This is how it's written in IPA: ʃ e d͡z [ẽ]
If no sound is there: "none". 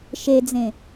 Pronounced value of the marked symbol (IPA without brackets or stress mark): ẽ